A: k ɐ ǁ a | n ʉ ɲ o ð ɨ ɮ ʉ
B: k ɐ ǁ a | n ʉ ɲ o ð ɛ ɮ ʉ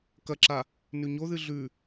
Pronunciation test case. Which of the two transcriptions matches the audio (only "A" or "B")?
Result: A